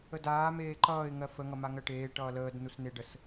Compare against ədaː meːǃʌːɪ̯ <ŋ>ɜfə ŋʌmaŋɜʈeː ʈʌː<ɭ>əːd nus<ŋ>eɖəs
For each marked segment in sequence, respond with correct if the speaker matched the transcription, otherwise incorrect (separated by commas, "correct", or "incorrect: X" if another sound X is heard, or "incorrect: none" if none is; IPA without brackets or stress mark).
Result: correct, incorrect: l, incorrect: n